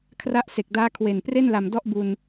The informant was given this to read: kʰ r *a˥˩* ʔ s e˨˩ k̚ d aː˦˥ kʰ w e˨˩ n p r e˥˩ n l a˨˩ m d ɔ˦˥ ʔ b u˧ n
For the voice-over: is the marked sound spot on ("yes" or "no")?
no